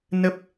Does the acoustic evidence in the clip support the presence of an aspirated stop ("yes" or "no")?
no